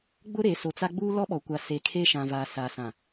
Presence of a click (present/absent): absent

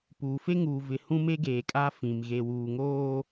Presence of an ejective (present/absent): present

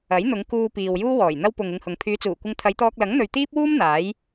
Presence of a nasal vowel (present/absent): absent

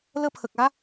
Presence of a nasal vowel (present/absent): absent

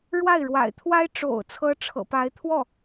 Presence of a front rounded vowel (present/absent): absent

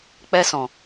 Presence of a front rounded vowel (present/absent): absent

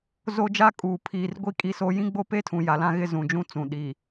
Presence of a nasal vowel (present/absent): present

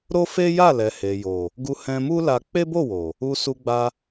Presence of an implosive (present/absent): absent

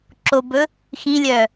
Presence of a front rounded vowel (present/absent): present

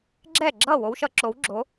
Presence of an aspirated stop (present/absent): absent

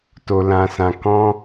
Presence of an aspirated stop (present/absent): absent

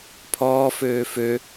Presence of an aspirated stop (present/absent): present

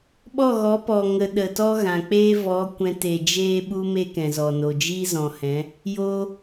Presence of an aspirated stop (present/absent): absent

